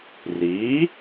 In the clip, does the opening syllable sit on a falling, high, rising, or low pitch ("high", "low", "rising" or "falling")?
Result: rising